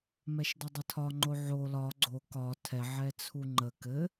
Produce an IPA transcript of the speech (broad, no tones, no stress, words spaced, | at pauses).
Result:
mɛʃdɘdˤətʰɒ ŋ͡ǃoʕo lɒ ɡ͡ǀo kɒ tʰɛʕɛ t͡sʰuŋ͡ǃə kɘ